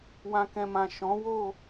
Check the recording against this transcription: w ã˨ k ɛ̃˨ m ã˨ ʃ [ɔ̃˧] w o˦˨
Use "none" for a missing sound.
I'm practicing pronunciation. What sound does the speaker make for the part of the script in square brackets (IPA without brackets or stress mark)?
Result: ɔ̃˨˦